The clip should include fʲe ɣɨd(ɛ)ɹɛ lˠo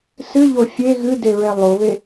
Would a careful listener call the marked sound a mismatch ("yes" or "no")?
yes